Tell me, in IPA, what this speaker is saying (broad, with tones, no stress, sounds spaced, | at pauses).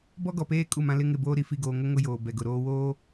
b ɔ˦ ɡ ɔ˨ p eː˦ kʼ u˦˨ m ã˦ l ɪ˦ ŋ ɪ˦˨ b oː˦ ɾ i˨ f i˨ ɡ oː˨ ŋ ʊ˦ ŋ ʊ˦ j oː˨ b ɛ˨ ɡ ʊ˨ ɾ oː˦ w oː˦